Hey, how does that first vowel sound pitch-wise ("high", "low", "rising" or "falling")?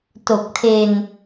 low